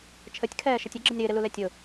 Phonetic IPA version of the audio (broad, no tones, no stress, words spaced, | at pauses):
t͡ʃʰətʲkʰɛːʃətʲ əɡ͡ǁənʲ ɾɪːɾɪlulɛ tʲʊ